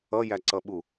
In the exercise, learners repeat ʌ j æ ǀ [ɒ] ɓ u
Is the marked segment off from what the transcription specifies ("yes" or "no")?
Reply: yes